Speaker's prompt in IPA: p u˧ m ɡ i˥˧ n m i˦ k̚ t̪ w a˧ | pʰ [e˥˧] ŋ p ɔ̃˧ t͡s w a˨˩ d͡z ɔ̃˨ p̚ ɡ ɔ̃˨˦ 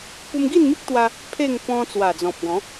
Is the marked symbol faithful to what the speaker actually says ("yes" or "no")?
yes